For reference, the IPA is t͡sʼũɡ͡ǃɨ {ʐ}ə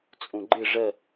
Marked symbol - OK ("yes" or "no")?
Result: yes